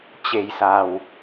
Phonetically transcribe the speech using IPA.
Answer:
t͡ɕ e̤˨˩ j s a̤˨˩ w

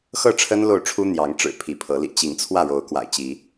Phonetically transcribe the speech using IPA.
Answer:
x ɤ˥˨ ʈ͡ʂʰ ə˦ n l o˥˨ ʊ̯ ʈ͡ʂʰ u˦ n̪ j ɑ˨˦ ŋ ʈ͡ʂ ɻ̩˨˩ pʰ i˨˦ pʰ ɤ˨˦ l ḭ˨˩ t͡ɕ i˨˦ ŋ t͡sʰ w ä˥˨ ɻ o˨˦ ʊ̯ k w a̰˨˩ ɪ̯ t͡ɕ i˨˦

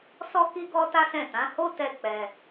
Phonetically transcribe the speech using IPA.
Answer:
s ɔ˧ k i˧ ɡ ɔ˧ t a˦ s ɛ̃˦˨ t ã˨˦ h o˦ t ɛ˧ k͡p ɛ˧

